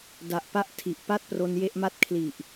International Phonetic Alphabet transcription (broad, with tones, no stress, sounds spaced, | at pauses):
d a˨˩ ʔ p a˥˩ ʔ tʰ i˨˩ ʔ p a˥˩ t̚ p r o˧ n j e˦˥ ʔ m a˥˩ t̚ kʰ l i˨˩ ʔ